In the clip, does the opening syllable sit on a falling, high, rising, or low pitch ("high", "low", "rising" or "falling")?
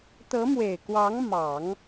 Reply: rising